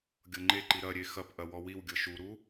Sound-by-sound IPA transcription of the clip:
ɡʲ ɤ ŋ͡ǃ e ǃ i ɾ ɐ ɾʲ e x ɐ p ʔ ɐ w ɔ w i w ɡʲ ɤ ʃ u ɾ u

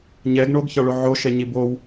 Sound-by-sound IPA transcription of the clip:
ɲ ɛ ɡ ɳ o ɡ ç ɒ ɭ o ʕ o ʃ ɛ ɲ i b o w

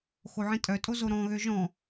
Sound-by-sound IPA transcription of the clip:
x o ʕ ĩ tʼ œ tʼ o z o ɾ ɔ̃ ɣ ø ʒ ɔ̃

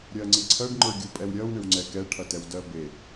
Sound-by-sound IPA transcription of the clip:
ɾʲ ɜ ŋ͡ǀ i ǀʰ ɜ ɖ ŋ͡ǃ ə˞ ɡʲ u pʼ ɛ w ɾʲ ɜ w ɳ ɪ w ŋ͡ǀ ɛ k ɛ ʈʰ ɐ t ɛ w d ɜ b e

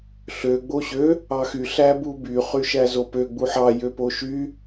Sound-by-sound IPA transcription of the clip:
ɬ ø ɡ͡b o ɕ ø | ɑ x y ɬ æ b u b y χ y ʃ æ z o p ø ɡ͡b u ħ ɑ j ø p o ʃ y

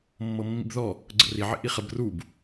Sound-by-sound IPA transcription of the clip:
mː ɤ mː ḭ b ð ɔ | ɡ͡ǀ ə̰ r i ʕ ḭ ʔ i χ ə b r u b

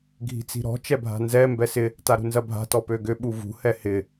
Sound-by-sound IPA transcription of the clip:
ɡʱ i̤ t͡s i̤ ɾ ɔ̤ t͡ʃ ɛ bʱ a̤ n z ɛ m b ɛ s ɪ | t a ɾ ṳ n z ɐ bʱ a̤ t ɔ p ø ɡ ʏ ɓ u v ṳ h ɛ h ɪ

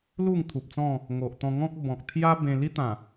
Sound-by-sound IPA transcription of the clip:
l u˥˧ ŋ t̪ʰ u˨ p̚ t͡s ɔ̃˥˧ | ŋ o˨ ʔ t̪ ɔ̃˧ ŋ ɔ̃˦ k̚ b ɔ̃˨ k̚ t̪ʰ j a˦ b ẽ˧ l i˦ t̪ ã˨˩

